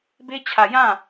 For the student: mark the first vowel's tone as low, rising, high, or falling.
high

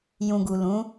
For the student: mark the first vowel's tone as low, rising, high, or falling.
low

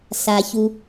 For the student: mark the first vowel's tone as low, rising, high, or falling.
low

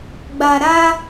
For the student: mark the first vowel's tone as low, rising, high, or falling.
low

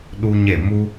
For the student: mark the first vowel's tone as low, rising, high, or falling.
high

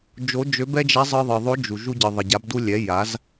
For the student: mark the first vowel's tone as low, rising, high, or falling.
rising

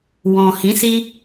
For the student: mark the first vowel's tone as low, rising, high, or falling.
low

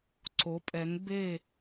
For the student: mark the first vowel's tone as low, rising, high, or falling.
rising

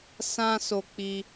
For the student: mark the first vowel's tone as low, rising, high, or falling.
high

